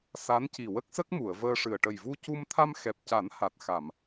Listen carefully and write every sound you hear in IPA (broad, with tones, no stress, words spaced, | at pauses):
sa˧˥nci˨˩ wə˦˥k̚sə˦˥k̚mu˨˩˨ə̯ vəː˧ʂɨ˨˩ə̯ ʈə˨˩jvu˧ cu˧mt̪ʰa˧mxɛ˨˩p̚ca˨˩˦n ha˨˩t̚xa˨˩˨m